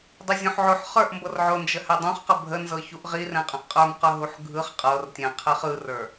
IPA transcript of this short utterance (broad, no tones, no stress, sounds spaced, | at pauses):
dˤ ɛ zʲ õ ħ ʕ o ħ χ ə˞ ʔ m b ɤ r ʕ ʊ n d͡ʒ ə h ɛ dˤ õ χ q ə bʱ ə n z ɤ ç u ʔ ʁ i r ɛ̃ qʼ ə̃ ʔ qʼ ə˞ m q ə˞ ɦ u ħ ɡʱ ɯ χ qʼ ɤ r tʲ ɛ̃ qʰ ɛ χ ɯ r ə˞